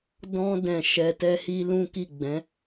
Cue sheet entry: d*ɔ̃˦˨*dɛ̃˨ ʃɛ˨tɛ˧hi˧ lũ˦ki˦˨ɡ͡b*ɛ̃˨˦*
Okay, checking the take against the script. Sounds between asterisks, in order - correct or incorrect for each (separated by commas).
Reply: incorrect, correct